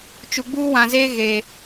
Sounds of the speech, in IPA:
t͡ʃ u˨ ɡ͡b uː˦ w ã˨ z eː˦ ɣ e˨

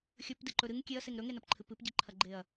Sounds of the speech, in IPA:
xʲ ɵ p d ɨ ǃ ɵ ɾ ɨ ŋ kʲ e ɐ̯ s e ŋ ɾ ɵ ŋ e n ɐ p ǃʰ ɨ p ɨ p ɟ i ǃʰ ɐ ɡ͡ǃ e ɐ̯

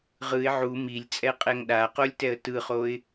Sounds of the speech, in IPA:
ʁ ɯ ɪ̯ ʕ u m i lʲ t͡sʼ ɛ qʼ ɛ ŋ ɗ a q o lʲ t ɛ ə̯ t ɯ χ o ɪ̯

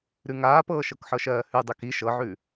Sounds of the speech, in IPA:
ɾ ʉ ŋ aː p ɤː ʃ ɤ k ħ ɤ ʃ ɜː h ʉ dˤ ʉ k i ʃ ɤ ʕ ʉ

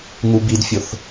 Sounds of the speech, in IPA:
ŋ u b i d fʲ ʊ θ

